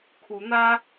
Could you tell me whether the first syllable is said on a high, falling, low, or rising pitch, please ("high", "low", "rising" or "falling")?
rising